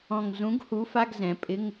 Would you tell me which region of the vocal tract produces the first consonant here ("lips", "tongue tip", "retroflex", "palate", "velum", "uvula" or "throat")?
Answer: velum